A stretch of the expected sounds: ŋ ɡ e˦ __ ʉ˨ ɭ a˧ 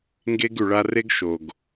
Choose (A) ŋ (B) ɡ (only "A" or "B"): B